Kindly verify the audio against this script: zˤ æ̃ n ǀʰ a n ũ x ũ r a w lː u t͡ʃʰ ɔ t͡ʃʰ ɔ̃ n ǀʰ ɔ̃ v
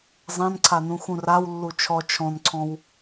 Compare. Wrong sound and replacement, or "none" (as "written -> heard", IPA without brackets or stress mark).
v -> w